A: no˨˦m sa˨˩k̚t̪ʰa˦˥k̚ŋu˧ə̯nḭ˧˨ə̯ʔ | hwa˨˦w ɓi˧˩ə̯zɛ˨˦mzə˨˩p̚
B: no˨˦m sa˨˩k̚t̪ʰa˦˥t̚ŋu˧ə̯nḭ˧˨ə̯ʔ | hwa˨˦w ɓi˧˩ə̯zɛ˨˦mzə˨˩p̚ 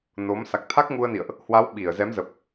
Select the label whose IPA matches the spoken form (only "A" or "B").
A